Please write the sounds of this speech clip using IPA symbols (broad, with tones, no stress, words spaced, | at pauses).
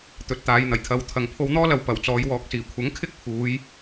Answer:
t̪ɵ˨˥t̚t̪aː˨˧jn̪ɐ˨˩jt̪ʰɐ˧w t̪ʰɐ˨˧ŋ pʰo˧wn̪ɔː˥lɐ˨w pɐ˨˩wt͡sɔː˨˧jwɔː˨˥k̚siː˨˩ kʷʰɐ˨˥ŋkʰɪ˥k̚pʰuː˨˧j